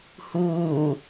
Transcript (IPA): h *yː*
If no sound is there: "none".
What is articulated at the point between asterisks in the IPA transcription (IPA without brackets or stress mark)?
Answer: uː